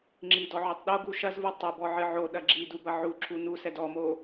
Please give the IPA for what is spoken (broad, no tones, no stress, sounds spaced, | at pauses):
ŋ͡ǁ i d ɔ ʕ u tˤ ɗ o ɡ u ʃ ɐ z v u tˤ u b ɔ ʕ ɨ ʕ o ɗ ɐ ɡ͡ǁ i d u b ɐ ʕ u ǁʰ u n u s ɛ d ɔ m o